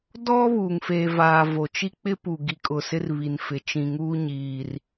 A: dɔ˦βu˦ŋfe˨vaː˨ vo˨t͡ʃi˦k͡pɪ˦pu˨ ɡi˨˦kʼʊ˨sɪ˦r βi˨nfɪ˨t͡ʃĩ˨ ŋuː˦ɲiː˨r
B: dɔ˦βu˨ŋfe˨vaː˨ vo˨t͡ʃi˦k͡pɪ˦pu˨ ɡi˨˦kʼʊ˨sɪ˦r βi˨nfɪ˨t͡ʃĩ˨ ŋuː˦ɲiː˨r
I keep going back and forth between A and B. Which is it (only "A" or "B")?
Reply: B